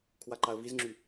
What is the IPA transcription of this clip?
kʰwaǃaə̯vizŋ͡ǁy

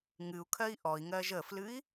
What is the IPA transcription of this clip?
ŋɨu̯kʰɜi̯ ʔɔi̯ŋɜʒ əflɨi̯

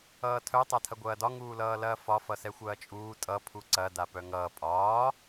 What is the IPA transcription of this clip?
ʌːtʰœ tˤatʰɐɡʷɐːdɒ ŋuːlʌːlɐːfɒ fʌsɛxʷɐːt͡ʃʼuː tʼʌ pʰuǀɐ dapœŋʌː pʼɒː

